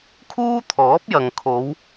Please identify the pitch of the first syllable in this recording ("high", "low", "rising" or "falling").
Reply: high